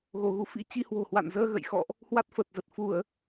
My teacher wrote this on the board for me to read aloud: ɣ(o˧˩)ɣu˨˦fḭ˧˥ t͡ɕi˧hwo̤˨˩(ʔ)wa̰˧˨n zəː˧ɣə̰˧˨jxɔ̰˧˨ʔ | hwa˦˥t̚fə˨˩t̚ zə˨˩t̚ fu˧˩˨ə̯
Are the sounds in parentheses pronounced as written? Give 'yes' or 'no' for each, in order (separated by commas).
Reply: yes, no